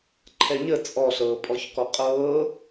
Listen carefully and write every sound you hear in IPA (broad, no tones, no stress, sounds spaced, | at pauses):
ǃʰ ɛ ɲ ə t͡sʼ ɔ ɬ ɤː pʼ ɔ ç k ɔ qʼ ɤː